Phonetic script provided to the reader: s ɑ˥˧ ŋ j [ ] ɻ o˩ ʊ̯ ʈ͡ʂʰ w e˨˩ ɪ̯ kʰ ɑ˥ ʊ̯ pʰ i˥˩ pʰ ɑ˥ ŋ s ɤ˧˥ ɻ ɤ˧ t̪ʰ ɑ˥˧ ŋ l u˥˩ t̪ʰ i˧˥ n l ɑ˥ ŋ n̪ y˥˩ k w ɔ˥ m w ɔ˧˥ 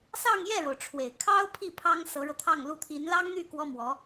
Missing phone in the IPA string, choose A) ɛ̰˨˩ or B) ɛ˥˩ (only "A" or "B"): B